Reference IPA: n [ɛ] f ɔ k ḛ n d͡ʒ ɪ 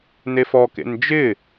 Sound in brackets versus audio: incorrect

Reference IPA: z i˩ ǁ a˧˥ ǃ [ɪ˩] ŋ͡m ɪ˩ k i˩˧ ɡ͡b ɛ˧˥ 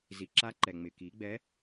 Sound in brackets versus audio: incorrect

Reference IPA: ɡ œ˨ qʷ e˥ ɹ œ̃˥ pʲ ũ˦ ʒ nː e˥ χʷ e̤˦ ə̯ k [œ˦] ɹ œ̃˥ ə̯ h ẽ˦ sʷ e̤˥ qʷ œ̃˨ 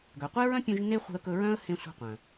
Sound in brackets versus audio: incorrect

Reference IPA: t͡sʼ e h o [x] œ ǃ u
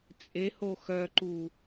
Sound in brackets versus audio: correct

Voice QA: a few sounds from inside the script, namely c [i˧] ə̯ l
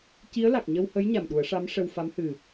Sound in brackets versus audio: incorrect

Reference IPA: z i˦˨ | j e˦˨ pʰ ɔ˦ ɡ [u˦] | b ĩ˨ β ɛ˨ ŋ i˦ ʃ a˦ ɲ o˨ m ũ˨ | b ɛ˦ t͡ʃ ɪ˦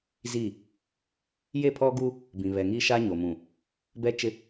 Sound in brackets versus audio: correct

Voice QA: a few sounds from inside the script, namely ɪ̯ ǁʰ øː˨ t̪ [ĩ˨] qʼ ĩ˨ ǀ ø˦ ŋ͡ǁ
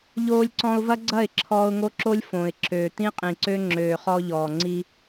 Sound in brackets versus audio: incorrect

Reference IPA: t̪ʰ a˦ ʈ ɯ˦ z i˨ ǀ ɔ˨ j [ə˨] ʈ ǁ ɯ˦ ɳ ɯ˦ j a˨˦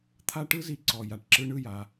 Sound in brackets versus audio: incorrect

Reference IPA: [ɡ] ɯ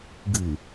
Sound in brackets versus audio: correct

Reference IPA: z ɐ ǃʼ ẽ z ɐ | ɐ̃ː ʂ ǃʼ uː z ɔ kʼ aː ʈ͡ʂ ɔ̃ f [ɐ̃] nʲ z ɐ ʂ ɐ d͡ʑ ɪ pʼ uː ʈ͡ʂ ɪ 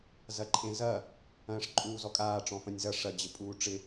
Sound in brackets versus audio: correct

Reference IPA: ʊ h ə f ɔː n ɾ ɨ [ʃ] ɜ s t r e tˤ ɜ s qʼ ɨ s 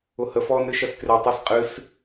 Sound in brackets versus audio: correct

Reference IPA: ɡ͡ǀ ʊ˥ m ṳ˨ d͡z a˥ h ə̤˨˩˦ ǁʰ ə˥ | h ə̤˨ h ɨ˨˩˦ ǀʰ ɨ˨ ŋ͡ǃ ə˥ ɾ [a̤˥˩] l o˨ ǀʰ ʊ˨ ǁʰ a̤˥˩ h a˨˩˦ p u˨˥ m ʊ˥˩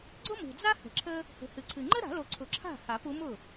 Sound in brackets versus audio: incorrect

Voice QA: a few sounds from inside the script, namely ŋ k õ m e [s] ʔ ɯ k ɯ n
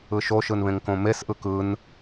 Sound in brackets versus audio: correct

